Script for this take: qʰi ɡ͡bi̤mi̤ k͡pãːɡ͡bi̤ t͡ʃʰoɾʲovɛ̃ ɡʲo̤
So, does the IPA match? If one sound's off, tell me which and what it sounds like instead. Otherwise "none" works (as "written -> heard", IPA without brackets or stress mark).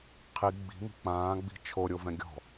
o̤ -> ɔ̤